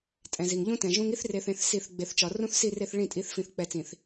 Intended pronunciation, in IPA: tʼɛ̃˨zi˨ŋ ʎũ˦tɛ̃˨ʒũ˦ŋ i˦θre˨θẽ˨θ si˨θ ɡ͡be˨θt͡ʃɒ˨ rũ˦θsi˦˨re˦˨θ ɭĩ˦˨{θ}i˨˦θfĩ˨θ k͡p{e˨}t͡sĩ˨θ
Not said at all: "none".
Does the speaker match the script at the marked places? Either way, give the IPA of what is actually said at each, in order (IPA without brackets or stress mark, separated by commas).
tʼ, ɛ˨